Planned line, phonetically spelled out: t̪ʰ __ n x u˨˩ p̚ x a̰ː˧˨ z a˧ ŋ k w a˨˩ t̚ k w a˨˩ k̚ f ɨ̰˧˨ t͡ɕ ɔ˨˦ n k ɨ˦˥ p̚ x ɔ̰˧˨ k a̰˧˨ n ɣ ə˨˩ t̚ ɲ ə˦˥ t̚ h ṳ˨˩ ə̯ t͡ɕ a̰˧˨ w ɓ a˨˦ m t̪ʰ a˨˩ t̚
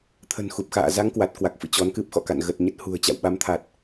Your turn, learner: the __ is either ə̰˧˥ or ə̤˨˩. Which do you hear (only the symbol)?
ə̤˨˩